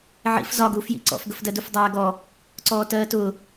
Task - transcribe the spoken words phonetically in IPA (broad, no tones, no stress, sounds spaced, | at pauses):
ʕ ḭ f z ɒ ɡ uː f j ḭ ǀ ɔ̰ f ɡ ə f d ɜ d u f dˤ æː ɡ ɔ | ǀ ɔː t ɜː t ʊ